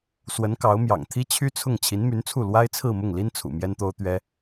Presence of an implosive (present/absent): absent